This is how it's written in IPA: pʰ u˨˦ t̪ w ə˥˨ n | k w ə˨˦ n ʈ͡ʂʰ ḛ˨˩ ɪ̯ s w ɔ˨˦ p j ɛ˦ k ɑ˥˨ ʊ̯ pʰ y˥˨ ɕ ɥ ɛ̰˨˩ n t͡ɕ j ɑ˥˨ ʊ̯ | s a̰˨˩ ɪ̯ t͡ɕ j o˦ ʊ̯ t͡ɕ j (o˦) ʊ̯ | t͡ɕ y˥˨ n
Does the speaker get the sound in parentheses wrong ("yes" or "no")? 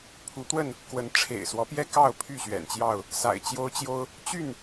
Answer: no